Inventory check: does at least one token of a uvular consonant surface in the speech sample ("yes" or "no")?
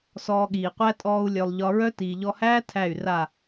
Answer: yes